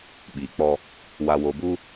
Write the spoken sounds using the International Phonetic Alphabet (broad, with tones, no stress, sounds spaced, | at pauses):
ɓ iː˨ k͡p ɔ˦ | w a˨ w o˨ b u˦